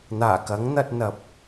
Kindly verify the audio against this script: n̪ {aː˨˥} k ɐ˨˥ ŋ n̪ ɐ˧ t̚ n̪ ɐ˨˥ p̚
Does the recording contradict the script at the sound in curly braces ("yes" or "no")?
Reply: yes